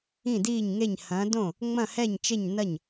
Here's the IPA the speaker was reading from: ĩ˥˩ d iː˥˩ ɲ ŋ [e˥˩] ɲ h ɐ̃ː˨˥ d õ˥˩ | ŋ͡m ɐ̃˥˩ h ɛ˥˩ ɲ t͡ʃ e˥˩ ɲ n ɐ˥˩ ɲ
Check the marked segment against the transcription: correct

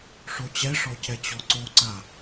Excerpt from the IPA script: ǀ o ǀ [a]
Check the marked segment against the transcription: correct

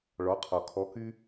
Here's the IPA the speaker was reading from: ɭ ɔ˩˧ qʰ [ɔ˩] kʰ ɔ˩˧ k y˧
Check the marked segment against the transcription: correct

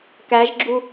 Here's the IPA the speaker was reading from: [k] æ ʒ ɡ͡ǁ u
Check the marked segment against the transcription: correct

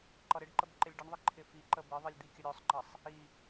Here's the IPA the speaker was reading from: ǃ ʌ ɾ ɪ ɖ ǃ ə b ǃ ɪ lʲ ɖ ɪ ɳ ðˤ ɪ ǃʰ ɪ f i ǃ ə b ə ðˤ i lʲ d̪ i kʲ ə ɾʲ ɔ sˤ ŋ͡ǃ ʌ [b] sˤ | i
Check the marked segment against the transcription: incorrect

